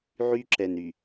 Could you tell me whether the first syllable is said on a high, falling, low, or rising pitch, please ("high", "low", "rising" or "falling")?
high